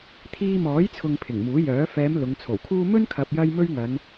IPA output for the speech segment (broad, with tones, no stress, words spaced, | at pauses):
t̪ʰiː˧mɔː˨˥jt͡sʰʊ˨ŋ pʰɪ˨˩ŋmuː˨˥jœː˨˥ fɛː˨˧m lʊ˨˧ŋt͡sʰo˨˩wkʰuː˥ mɵ˥nkʰɐ˨p̚jɐ˧j mɵ˥ɥŋɐ˨˧n